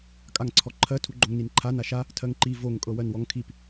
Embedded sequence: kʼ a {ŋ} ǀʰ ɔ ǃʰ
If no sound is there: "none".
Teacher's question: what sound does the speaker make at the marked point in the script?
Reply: ŋ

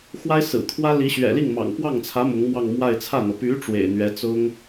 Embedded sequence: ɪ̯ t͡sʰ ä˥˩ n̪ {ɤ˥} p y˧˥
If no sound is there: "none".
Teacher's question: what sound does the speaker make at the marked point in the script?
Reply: ɤ˩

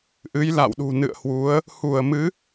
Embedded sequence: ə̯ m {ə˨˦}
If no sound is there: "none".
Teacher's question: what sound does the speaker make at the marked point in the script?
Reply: ɨ˨˦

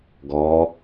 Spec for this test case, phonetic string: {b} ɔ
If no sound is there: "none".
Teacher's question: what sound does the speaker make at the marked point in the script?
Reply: ɡ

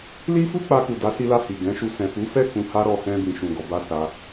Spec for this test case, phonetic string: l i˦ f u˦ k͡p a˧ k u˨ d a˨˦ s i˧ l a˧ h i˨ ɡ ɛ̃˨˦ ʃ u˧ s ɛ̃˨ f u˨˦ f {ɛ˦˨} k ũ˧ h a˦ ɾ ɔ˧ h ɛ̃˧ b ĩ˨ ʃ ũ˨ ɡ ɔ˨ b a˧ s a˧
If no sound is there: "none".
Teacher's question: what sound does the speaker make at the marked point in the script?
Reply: ɛ˦˨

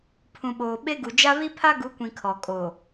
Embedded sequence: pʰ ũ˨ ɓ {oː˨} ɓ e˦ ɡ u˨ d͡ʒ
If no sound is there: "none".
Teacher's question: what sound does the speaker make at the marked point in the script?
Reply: oː˨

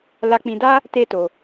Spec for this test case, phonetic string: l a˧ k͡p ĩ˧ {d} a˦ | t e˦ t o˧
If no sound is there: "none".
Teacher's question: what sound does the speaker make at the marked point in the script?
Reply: d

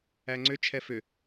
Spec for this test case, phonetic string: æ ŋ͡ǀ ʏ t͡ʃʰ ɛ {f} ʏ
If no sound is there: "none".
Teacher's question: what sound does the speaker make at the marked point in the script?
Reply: f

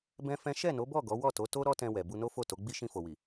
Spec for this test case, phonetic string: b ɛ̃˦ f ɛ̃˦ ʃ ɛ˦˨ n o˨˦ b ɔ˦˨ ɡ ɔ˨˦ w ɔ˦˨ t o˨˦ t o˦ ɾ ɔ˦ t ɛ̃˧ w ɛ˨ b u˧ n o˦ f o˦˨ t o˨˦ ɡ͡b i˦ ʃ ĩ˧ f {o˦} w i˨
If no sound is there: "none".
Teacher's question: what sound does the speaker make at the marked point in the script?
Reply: o˨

